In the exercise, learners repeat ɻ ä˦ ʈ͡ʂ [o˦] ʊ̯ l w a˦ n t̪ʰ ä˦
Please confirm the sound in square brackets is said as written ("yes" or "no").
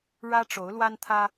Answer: no